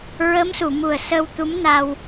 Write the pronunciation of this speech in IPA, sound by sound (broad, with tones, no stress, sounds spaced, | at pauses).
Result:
ɹ ə˧˥ m s u˨˩˨ m u˨˩ ə̯ s ə˧ w t̪ u˧˥ m n a˧ w